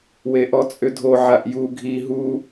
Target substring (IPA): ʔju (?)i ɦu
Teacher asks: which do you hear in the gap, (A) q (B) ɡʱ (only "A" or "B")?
B